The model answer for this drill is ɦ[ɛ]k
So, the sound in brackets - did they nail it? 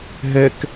yes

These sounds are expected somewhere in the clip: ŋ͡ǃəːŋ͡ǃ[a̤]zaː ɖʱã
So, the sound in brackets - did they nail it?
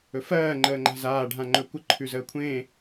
yes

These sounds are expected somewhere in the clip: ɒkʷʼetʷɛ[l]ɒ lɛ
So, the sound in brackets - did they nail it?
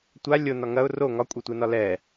no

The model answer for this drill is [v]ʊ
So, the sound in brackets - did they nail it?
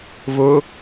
yes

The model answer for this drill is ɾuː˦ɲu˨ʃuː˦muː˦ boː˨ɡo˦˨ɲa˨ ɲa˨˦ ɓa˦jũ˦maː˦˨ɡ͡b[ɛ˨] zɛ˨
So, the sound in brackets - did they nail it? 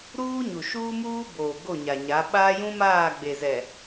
no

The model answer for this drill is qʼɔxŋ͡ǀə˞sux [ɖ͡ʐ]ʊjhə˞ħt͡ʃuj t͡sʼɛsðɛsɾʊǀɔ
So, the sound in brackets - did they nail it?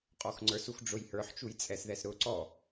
yes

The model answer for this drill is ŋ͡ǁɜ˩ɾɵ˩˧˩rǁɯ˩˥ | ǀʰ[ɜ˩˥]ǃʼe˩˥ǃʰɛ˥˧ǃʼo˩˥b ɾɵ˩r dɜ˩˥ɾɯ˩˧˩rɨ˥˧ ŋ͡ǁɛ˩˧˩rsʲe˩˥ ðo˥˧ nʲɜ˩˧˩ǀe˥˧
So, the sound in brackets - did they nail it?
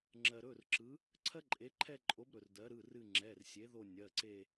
no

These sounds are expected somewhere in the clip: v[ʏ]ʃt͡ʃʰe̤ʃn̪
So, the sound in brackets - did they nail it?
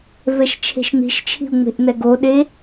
no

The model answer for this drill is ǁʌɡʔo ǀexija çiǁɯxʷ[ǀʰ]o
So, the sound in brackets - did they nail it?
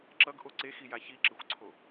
yes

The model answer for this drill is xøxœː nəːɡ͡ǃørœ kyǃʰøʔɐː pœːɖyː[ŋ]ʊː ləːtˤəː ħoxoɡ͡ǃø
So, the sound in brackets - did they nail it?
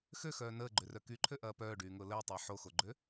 yes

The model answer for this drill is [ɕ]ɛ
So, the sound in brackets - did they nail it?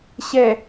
yes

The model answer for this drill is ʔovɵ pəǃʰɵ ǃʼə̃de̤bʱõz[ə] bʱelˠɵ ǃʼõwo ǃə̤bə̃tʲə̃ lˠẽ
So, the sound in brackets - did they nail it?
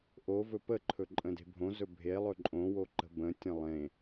no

